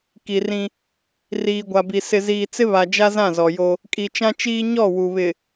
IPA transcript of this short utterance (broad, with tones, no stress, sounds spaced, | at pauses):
k i˨ r ĩ˦ | r iː˨ ɡʷ a˨ b i˨ s ɪ˨ z iː˨ t͡s ɪ˦ β a˨ d͡ʒ a˦ z ã˦˨ z ɔ˨ j o˦ | kʼ i˨ t͡ʃ ã˦ t͡ʃ iː˦ ɲ ɔ˦˨ w u˨ β ɪ˨